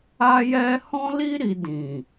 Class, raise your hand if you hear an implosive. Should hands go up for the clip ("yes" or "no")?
no